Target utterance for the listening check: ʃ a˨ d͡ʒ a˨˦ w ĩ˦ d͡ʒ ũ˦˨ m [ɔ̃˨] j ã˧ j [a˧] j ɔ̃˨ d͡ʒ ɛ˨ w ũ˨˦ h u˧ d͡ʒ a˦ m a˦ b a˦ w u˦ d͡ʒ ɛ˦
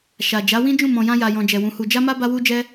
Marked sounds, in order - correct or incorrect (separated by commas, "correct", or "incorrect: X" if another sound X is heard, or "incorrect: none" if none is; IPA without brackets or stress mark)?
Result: correct, incorrect: a˨